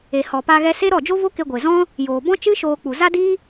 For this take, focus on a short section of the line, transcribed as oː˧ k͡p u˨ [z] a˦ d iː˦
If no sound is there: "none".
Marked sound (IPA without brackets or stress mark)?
z